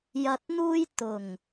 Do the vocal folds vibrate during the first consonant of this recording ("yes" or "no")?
yes